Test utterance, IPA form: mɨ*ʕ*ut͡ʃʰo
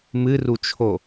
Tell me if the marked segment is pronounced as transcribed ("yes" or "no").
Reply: no